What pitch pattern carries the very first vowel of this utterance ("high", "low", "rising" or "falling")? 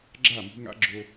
falling